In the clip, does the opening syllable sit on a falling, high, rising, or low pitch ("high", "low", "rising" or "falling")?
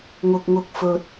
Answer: low